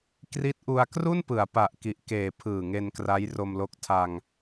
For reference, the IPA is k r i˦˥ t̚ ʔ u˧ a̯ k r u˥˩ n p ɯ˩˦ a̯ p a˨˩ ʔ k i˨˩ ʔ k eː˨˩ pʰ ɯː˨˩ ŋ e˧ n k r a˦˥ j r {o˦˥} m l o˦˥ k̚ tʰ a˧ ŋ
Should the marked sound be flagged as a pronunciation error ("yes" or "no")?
yes